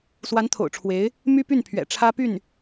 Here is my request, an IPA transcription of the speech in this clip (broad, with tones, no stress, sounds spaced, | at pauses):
s w a˧˥ n t̪ʰ o̰˨˩ ʊ̯ ʈ͡ʂʰ w e˧˥ ɪ̯ | m y˥ p y˥˩ n pʰ ɥ ɛ̰˨˩ ʈ͡ʂʰ ä˥ p y˥˩ n